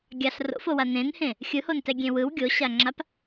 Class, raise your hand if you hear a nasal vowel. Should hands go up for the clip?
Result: yes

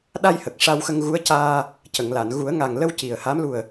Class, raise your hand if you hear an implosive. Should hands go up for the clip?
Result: yes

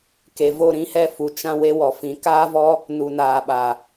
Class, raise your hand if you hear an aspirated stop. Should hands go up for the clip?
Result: no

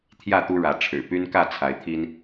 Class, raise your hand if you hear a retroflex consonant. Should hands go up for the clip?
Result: yes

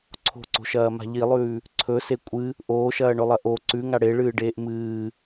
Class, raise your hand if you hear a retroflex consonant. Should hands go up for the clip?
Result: yes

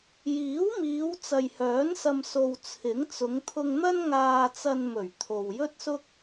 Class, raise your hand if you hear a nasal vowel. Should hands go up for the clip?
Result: no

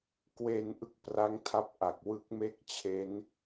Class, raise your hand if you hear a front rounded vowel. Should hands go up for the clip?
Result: no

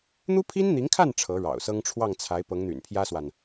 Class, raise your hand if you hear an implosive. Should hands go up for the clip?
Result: no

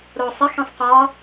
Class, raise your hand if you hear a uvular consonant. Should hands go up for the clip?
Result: yes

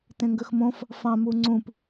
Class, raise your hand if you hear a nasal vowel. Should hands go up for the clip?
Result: yes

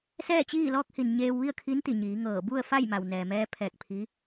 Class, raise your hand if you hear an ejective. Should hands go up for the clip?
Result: no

